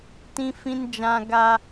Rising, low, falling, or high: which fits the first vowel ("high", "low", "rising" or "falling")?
high